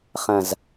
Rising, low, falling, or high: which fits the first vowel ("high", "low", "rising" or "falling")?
low